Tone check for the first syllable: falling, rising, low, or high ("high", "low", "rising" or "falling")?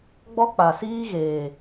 high